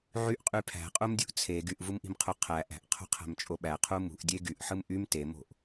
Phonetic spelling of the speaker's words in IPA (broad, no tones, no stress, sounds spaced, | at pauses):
ʕ y ʔ qʼ y pʰ æ̤ qʼ u m dʲ ṳ ʔ t͡sʰ e ɡ y ʔ v u m ʔ i̤ m qʰ u qʰ æ ʔ æ̤ ʔ qʰ o̤ qʰ æ̤ m t͡ʃʼ o ɓ æ qʰ u m ṳ ʔ dʲ e ɡ y ʔ ħ ɯ m ʔ y m t e m o̤ ʔ